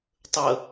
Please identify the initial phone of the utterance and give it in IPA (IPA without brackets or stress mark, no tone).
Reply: tˤ